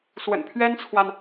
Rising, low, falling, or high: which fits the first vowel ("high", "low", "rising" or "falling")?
low